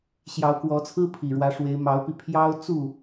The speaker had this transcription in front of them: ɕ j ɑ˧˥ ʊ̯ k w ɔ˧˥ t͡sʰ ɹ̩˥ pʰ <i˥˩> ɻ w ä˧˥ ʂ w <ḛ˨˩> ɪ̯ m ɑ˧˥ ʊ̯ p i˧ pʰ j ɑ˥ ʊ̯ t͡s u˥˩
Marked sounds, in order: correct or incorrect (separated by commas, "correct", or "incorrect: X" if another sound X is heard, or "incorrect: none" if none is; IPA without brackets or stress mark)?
incorrect: i˨˩, incorrect: e˧˥